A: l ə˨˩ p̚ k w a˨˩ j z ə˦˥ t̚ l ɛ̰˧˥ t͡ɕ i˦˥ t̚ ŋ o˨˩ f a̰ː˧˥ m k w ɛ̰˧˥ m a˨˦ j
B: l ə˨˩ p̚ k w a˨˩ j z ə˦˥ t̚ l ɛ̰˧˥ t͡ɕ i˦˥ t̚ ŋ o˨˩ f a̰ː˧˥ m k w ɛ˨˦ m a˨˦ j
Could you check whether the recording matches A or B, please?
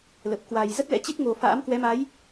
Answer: B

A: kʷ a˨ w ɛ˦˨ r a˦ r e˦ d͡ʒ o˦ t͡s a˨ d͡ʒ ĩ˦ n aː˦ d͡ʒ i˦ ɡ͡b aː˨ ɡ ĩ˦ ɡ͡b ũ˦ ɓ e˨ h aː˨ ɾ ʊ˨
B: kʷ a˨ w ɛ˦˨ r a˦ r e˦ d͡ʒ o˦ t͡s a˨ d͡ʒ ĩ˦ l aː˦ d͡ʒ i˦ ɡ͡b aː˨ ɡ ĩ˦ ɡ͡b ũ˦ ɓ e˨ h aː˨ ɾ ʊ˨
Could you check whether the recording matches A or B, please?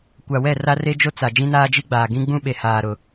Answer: A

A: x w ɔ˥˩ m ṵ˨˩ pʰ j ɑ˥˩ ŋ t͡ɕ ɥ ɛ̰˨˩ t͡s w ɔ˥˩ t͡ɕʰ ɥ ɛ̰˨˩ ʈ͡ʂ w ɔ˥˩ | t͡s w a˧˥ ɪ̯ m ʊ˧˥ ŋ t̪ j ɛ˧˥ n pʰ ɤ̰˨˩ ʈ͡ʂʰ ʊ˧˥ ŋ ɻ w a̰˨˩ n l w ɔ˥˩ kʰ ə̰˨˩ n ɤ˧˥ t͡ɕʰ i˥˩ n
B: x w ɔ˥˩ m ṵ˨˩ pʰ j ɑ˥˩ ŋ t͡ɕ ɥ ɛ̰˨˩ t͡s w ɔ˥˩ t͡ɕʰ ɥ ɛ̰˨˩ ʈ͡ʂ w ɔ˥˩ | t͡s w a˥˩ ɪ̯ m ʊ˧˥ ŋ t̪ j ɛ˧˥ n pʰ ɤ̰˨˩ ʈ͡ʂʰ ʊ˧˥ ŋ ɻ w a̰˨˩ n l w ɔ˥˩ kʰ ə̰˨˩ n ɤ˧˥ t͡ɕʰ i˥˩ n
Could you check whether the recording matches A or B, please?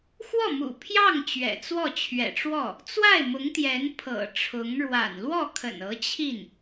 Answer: B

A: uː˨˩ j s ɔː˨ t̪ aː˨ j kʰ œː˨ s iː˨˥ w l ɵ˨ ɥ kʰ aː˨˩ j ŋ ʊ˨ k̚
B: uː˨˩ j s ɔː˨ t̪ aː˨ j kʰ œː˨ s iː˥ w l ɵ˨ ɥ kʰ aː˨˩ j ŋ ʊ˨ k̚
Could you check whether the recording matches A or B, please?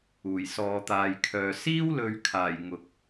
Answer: B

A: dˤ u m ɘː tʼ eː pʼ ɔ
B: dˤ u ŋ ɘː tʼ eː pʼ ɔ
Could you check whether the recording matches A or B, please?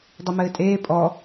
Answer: A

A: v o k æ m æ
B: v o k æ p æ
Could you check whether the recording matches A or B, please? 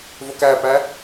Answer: B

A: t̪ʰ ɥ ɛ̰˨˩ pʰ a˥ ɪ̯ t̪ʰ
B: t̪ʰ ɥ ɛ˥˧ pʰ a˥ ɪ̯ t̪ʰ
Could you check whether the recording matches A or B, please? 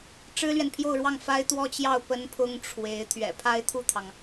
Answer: A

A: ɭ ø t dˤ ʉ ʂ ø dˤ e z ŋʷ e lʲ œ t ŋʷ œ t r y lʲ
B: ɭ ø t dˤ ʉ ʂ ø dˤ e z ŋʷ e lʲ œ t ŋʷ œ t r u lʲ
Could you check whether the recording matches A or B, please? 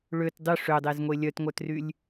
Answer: A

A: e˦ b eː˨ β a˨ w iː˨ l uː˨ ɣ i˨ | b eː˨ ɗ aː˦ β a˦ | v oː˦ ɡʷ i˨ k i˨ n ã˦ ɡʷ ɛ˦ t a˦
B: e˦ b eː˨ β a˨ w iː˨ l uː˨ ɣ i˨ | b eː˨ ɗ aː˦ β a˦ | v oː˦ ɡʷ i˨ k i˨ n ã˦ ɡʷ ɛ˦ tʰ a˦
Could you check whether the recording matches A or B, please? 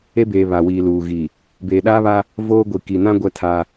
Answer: B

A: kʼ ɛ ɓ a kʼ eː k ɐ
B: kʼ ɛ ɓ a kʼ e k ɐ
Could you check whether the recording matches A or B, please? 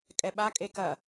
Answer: B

